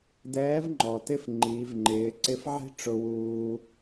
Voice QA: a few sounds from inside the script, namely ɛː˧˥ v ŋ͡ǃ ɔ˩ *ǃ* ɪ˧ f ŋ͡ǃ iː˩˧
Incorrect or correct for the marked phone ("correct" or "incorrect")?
incorrect